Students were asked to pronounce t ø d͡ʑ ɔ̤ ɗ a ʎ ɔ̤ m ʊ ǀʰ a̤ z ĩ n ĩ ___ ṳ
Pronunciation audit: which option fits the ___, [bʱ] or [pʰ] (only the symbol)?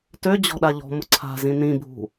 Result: bʱ